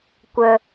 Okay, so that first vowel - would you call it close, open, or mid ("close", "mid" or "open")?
mid